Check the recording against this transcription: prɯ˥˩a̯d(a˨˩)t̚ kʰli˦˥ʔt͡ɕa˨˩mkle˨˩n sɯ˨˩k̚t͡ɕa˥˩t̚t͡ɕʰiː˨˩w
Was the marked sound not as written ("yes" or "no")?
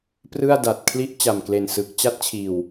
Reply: no